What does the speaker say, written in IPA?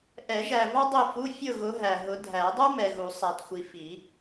ʔɛ˨˩˦ʒæ˨ vɑ˥dˤi˦˨fu˧˥˧ fʲʊ˦˨ɣʊ˨˦ ɦæ˨ ɦʊ˨˦dʱæ˨˩˦dˤu˥ mɛ˨ɣu˨˩˦ sˤæ˨txʷi˨ fi˨˩˦

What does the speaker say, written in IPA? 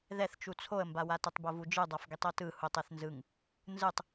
ðɛθt͡ʃu t͡sʰoə̯mbawa tɛtˤbovud͡ʒɯ dˤafɡitˤotɯ hutˤeθnzɯŋ | nzɯtˤ

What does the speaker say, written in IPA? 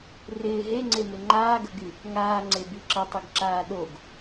rɪː ɦeŋ͡ǀemɪ ŋ͡ǃaːɡəɡy | ŋaːŋ͡ǀe biǁətˤiɡǁaː ɗoɡ

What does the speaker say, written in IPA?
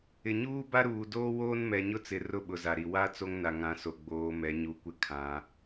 ɪ˨ɲuː˦ba˦ ɾuː˨doː˦ woː˦nmɛ˨ɲʊ˦t͡sɪ˨ rʊ˦ɓʊ˨za˨ɾi˨ wa˦ t͡so˦ŋna˨ŋã˨˦ so˨ɡ͡boː˨˦mɛ˨˦ ɲu˨kʷɪ˦kʰã˨˦

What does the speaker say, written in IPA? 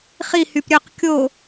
χihyp ɾʲøq kʲo

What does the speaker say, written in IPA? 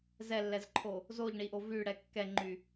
zɛlːɛzǃʰo | zoʎɳi ʔovyɽɛ kːɛŋ͡ǃy

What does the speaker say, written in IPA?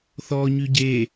θɔɲy ɟe

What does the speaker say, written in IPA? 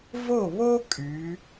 vo˧˩βo˧ kʼy˩˧

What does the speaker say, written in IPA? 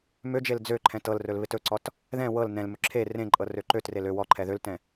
mød͡ʒel d͡zøǃʰɛ̃t ɤl rɵlβɪtɵǀɔt | ðɛ̃ wɤl nɛ̃lmɵ ǁʰe rẽǃʼɤ røǃøtrel ø wɔ ǃʰɛðøltɛ̃

